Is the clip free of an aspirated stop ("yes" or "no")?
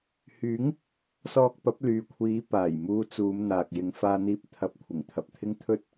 no